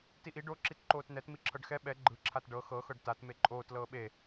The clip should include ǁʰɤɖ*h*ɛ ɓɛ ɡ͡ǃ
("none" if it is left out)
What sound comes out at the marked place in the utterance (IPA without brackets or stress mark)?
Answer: x